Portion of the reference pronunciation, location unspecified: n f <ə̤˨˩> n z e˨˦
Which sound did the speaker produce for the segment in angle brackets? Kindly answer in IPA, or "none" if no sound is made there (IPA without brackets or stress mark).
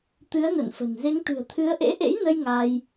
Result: ə̤˨˩